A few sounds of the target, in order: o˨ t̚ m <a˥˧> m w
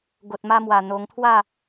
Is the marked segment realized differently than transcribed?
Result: yes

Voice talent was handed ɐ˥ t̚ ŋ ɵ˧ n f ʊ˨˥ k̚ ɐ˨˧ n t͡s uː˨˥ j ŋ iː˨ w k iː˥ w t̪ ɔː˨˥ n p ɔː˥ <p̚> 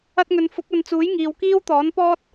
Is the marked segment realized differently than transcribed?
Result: yes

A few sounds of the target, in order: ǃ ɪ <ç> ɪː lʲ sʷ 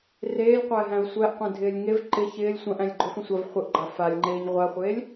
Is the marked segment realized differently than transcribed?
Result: no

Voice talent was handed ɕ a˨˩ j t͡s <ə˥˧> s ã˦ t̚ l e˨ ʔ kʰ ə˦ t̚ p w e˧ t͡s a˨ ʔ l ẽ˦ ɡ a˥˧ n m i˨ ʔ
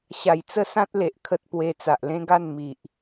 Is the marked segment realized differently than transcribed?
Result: no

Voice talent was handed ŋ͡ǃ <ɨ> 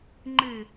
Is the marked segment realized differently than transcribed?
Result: no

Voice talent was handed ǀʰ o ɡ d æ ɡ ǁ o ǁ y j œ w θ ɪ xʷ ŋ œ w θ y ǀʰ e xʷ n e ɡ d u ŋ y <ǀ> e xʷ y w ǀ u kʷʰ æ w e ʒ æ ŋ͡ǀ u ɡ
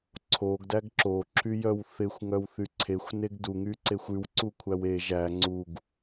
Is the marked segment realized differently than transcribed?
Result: no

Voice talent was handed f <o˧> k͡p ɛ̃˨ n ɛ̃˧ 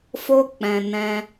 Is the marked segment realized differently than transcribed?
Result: no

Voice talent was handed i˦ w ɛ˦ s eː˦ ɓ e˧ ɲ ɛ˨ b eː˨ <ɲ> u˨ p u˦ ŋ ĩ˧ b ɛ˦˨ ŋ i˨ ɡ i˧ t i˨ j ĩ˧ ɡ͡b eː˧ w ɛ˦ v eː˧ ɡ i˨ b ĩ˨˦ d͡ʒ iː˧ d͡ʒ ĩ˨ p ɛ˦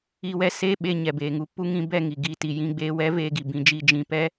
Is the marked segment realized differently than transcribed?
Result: yes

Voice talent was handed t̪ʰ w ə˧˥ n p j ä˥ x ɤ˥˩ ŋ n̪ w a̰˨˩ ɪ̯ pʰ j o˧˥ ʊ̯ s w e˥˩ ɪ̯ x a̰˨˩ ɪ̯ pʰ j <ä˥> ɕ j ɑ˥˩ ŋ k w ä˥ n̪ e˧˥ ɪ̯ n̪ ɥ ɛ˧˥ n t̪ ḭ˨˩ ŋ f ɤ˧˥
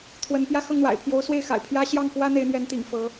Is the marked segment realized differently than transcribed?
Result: no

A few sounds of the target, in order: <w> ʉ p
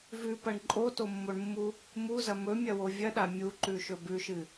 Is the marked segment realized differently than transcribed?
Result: yes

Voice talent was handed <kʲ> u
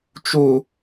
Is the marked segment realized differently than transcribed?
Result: yes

